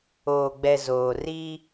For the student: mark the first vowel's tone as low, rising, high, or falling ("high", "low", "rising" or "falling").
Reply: low